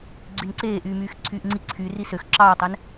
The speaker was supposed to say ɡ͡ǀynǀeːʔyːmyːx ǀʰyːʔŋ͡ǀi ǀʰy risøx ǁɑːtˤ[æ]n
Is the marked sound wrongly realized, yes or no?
no